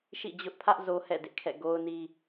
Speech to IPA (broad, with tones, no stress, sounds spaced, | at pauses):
ʃ ḭ˦˨ d͡ʑ ʊ˦ ʔ pʰ ä˦ ʔ z o˦ h ɛ̰˦˨ d ɪ˦ ʔ kʰ ɛ̰˦˨ ɡ o˦ ʊ̯ n i˦